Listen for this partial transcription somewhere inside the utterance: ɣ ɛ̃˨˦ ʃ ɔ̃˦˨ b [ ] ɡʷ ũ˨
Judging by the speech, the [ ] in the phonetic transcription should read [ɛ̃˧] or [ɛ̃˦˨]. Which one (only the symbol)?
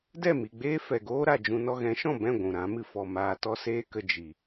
ɛ̃˦˨